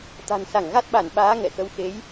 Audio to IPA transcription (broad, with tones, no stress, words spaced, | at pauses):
t̪a̤˨˩nsa˧˩ŋɣa˦˥t̚ɓa˧˩n ɓaː˨˦ ŋɛ̰˧˨xə˧w xe˨˦j